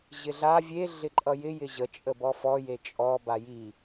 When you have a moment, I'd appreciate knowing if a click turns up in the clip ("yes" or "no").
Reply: yes